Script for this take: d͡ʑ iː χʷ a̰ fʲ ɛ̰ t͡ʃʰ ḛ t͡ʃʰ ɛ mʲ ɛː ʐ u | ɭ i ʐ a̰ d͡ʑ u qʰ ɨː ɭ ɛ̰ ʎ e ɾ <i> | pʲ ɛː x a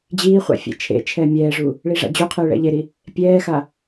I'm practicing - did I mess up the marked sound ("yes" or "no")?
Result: no